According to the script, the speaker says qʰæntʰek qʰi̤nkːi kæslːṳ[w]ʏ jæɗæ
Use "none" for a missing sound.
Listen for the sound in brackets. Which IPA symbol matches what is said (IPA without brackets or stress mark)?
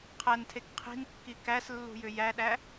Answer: j